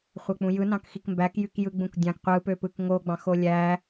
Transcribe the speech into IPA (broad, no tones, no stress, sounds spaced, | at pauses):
χʷ æ k͡p ũ j ɯ n ɑ̃ k x i k m b æ k j y k j ɯ ɡ͡b ũ k dʲ ɑ̃ k qʷ ɯ p ø p ɯ k ŋ o ɡ͡b ɑ̃ x o lʲ æ